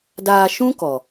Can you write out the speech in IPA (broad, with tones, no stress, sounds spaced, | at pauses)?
d aː˧ ʃ ũ˦ k ɔ˨